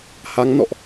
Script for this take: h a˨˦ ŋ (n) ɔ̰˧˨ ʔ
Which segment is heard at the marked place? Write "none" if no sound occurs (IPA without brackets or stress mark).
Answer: n